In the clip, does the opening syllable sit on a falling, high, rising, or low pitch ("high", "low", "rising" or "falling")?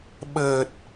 low